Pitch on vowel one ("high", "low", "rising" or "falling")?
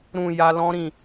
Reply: low